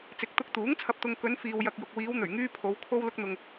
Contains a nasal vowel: no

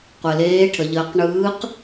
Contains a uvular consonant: yes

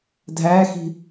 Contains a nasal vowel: no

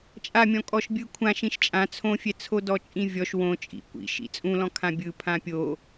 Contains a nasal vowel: yes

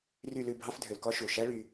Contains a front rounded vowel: yes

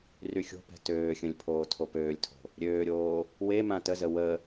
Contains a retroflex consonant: no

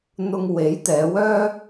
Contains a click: no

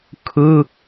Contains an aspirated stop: yes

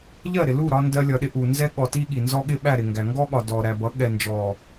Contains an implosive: yes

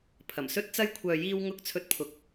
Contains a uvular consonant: no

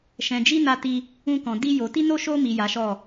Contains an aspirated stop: no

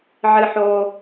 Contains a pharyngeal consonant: yes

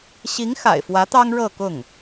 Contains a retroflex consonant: yes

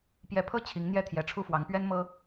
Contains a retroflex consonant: yes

